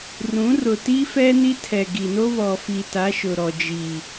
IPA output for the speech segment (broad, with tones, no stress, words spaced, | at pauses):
rũ˨˦rʊ˨ ti˦fɛ˦ ni˦tʰɛ˨ɡi˨no˦ βɔ˨fi˨ta˨˦ ʃʊ˨ɾɔ˨d͡ʒiː˨